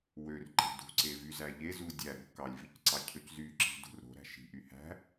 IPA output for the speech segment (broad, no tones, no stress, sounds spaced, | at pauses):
w ø r ǃ e̤ d ṳ ǀ e v y z æ ʎ e z u dʲ æ ɾ o̤ k ɑ lʲ v i c ǀ ɑ cʰ ø c z y ǁ i̤ d ṳ r ɾ o̤ ɾ æ̤ ʃ i̤ ʔ y h æ̤